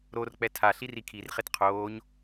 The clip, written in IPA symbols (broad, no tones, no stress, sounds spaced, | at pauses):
ɾ o r k͡p ɛ tʰ a ɬ i r i kʰ i r χ e t qʰ oː ɲ